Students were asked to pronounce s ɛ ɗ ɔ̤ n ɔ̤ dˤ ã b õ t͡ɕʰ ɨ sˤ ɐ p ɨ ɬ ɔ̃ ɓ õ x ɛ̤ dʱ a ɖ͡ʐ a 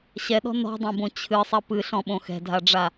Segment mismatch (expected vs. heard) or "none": s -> ɕ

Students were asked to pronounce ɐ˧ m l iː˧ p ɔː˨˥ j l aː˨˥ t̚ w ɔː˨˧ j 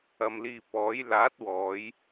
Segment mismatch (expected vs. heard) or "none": none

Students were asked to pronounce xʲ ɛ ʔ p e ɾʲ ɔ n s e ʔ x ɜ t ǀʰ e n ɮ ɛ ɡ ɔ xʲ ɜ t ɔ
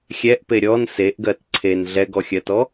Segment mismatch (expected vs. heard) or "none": x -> ɡ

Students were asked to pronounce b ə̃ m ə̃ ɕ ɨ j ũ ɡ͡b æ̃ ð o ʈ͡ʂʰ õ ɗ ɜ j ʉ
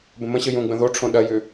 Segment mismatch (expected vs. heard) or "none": æ̃ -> ə̃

